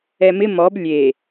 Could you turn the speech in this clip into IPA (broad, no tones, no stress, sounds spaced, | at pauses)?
ɛ m ɪ m ɔ b lʲ e